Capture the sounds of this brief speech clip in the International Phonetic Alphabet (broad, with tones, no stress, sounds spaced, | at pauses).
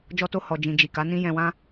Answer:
d͡ʒ ɔ˦ t o˦ h ɔ˧ d͡ʒ ĩ˧ d͡ʒ i˨ k a˨˦ n ĩ˦ j ɛ̃˧ w ã˦